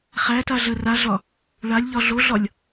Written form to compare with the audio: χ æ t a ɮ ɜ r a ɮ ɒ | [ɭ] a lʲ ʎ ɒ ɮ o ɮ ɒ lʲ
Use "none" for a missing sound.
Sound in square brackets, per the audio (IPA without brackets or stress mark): ɭ